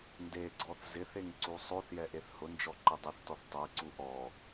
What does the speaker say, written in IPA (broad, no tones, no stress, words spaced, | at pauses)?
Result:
ndeɡ͡ǀɔθ zɪθeŋ ǀusˤoθjɛ ʔeθhʊnd͡ʒɔ ǃɪdˤuθtɔθ tˤɛǀu ʔɔ